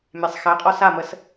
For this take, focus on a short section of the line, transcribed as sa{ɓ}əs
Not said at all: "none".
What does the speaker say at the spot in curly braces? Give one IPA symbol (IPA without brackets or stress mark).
m